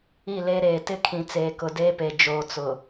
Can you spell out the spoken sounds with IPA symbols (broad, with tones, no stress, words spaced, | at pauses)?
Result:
i˦˨leː˦ɾeː˨ tɪ˦kʰĩ˨ t͡seː˨kʊ˨ deː˦pe˨ d͡ʒoː˨ t͡sʊ˨